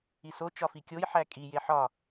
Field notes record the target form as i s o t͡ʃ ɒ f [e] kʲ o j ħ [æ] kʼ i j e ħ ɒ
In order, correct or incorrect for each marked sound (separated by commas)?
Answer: incorrect, correct